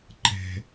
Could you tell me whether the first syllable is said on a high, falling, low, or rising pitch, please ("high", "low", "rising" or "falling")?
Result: low